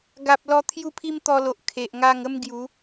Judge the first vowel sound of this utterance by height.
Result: low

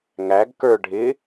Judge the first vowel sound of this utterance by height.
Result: low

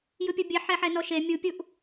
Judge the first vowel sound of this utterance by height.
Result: high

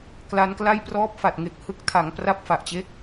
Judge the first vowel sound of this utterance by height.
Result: low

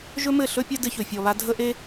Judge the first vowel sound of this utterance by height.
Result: mid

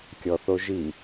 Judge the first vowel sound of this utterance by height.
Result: mid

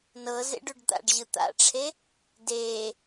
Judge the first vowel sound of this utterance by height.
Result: mid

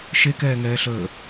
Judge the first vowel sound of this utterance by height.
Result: mid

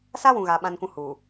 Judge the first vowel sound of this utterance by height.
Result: low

